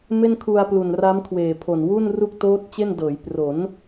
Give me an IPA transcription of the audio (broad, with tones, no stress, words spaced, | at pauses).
me˥˩nkʰu˧a̯plu˨˩nra˦˥m kʰweː˨˩pʰo˨˩n wu˥˩nru˥˩k̚ toː˦˥t̚ t͡ɕe˥˩ndɤː˩˦j pro˩˦n